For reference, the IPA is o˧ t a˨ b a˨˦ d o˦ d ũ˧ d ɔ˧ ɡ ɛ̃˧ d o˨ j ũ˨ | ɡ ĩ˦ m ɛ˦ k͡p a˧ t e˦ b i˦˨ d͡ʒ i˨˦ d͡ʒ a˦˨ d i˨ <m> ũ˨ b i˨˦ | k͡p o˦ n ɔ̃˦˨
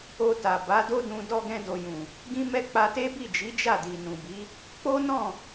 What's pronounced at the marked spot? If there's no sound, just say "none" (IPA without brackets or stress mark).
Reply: n